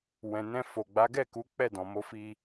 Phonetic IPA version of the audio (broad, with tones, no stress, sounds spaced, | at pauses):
w ɛ̃˨ n ɛ̃˧ f o˨ ɡ͡b a˨˦ ɡ ɛ˦˨ k u˨˦ k͡p ɛ˦˨ d ɔ̃˨ m o˨˦ f i˧